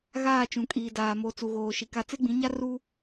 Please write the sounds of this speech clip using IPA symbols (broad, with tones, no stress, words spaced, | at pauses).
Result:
ɣaː˦˨t͡ʃũ˨kʼiː˨daː˨ mo˨t͡su˨ɣoː˨ ʃi˨ka˦ t͡se˦ɡ͡bĩ˨˦ɲa˦ ru˦